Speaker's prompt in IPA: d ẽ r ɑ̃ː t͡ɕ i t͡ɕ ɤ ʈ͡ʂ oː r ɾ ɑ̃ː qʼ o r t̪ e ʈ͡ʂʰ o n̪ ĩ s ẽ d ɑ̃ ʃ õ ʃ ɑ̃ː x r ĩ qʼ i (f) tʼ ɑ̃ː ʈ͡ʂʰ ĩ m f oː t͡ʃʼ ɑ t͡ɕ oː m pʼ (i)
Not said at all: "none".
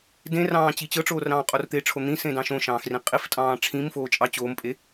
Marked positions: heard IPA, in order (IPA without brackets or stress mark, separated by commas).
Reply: f, e